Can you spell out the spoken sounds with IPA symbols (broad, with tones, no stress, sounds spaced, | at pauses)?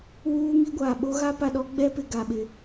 w uː˦ ŋ i˦ ɡʷ aː˨ ɓ o˦ ɣ a˦ p a˨ ɗ ɔ˦ ɡ͡b ɛ˦ p ɪ˨ ɡ a˨ ɓ ɪ˨